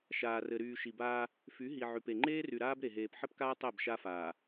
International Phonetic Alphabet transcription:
ʃ aː˨ r ɘ˨ ɾ yː˨ ʃ i˨ b aː˦ | f y˨˦ ɦ i˨ ʕ y˨ p e˨ ŋ͡ǃ eː˦ r y˨ ɾ aː˦ b ɾ e˨ ɦ eː˨ p ħ ɘ˦ p k aː˦ tˤ ɛ˦˨ b ʃ a˦ f aː˨

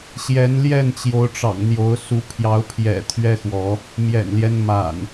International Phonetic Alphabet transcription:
ɕ j ɛ˨˦ n l j ɛ˥˨ n t͡ɕ j o˨˦ ʊ̯ ʈ͡ʂ ɑ̰˨˩ ŋ n̪ j o˨˦ ʊ̯ s u˨˦ pʰ j ɑ˨˦ ʊ̯ pʰ j ɛ̰˨˩ t̪ʰ ɥ ɛ˦ x w ɔ˨˦ | m j ɛ̰˨˩ n l j ɛ˦ n m a̰˨˩ n

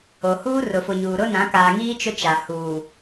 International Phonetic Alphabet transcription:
o˨ h uː˦ r ʊ˨ f ʊ˨ ɲ uː˨ ɾ ʊ˦ n ã˨˦ k aː˨ ŋ iː˦ t͡ʃ ʊ˦ t͡ʃ a˨ h uː˨

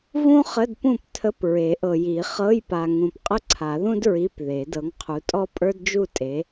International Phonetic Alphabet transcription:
v ũ˥ χ ə˧˥˧ d p ũ˥˨ p tʰ ə˧˥˧ p ɹ e˨˩˦ ʔ ɤ˨ j i˨˩˦ χ ɤ˧˥˧ j p a˨ ŋ ũ˨ p qʼ ə˥˨ ǀʰ a˨˩˦ ð ũ˥ d ɹ i˧˥˧ p ð e˨˩˦ d ɤ˨˦ ŋ qʰ u˨˦ tʼ ɔ˥ pʼ ə˞˥ d d͡ʒ u˥˨ tʼ e˨˦

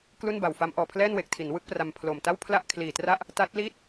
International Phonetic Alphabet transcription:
k l u˥˩ n b a˨˩ w f a˦˥ m ʔ ɔː˨˩ pʰ l ɛː˥˩ n w e˨˩ k̚ tʰ i˩˦ n w ɯ˥˩ k̚ p r a˧ m pʰ l o˨˩ m t a˥˩ w pʰ l a˥˩ ʔ kʰ l iː˨˩ t r a˥˩ ʔ | t a˦˥ t̚ l iː˥˩ t̚

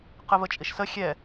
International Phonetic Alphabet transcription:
q ɯ v ə t͡ʃʼ i ʃ s ə xʲ ɛ

